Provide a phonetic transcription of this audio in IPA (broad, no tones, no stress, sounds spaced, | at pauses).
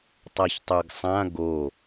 tˤ a ç tˤ ə˞ ɡ sˤ ã ɡ o